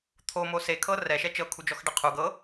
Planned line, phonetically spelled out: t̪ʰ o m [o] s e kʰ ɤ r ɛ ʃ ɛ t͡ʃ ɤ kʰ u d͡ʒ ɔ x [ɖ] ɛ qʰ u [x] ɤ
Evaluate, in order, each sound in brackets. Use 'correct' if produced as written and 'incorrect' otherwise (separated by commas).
correct, correct, incorrect